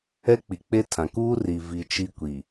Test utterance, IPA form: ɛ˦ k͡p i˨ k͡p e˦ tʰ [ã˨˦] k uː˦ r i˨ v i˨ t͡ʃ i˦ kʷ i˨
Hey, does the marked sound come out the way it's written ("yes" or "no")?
no